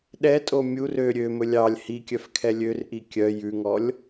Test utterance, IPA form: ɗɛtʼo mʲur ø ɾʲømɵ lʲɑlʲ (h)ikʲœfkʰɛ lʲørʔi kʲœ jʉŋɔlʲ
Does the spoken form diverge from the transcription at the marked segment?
no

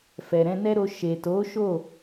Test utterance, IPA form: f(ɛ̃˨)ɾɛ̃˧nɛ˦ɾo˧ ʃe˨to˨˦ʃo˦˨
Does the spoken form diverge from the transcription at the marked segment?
yes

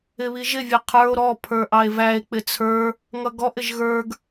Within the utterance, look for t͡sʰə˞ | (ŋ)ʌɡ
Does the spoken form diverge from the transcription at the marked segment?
no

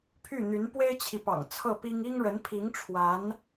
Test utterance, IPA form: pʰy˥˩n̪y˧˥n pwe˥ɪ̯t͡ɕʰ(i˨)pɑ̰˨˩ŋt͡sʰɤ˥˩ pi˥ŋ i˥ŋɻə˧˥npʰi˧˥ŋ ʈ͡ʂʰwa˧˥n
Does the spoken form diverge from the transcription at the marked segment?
no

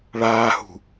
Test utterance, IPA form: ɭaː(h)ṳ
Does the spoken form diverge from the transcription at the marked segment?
no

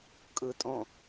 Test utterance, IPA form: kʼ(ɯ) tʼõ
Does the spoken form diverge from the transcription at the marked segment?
no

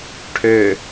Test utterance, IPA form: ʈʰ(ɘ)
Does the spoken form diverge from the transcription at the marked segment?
yes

